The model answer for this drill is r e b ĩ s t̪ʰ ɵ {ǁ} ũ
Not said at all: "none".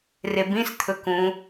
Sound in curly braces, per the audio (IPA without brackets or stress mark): k